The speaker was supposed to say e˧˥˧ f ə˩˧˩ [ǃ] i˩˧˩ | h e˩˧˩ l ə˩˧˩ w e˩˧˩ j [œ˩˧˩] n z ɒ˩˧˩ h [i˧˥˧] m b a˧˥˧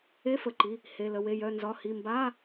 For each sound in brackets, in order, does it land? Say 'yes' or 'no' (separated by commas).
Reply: yes, yes, no